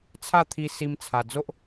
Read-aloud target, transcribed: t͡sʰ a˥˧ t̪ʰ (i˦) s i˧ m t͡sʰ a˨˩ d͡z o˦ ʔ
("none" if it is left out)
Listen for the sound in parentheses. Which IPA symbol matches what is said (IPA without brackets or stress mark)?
i˧